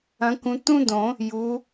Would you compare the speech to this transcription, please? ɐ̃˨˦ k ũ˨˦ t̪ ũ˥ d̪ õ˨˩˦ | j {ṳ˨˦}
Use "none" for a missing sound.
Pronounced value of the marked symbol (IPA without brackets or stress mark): u˨˦